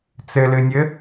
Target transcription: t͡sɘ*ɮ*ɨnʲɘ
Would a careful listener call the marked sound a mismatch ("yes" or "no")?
yes